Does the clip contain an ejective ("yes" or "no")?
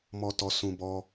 no